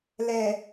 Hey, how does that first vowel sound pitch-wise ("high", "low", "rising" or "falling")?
low